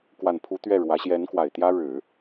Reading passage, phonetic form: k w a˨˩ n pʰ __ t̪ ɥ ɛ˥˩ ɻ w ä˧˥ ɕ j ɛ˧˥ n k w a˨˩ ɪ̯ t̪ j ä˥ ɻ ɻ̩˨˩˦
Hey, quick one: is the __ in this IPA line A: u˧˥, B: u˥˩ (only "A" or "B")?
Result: A